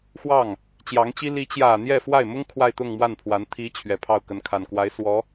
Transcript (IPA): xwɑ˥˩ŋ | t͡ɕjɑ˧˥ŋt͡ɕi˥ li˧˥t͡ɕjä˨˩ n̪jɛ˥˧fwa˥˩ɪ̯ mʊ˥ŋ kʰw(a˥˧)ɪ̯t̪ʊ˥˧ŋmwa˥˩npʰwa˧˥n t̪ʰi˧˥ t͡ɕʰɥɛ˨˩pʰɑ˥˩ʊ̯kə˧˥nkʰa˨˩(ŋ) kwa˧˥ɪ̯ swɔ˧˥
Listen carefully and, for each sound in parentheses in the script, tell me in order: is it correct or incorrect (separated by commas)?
correct, incorrect